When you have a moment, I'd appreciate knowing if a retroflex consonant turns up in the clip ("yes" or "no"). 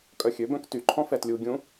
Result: no